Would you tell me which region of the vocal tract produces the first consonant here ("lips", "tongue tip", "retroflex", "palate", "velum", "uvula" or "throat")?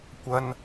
velum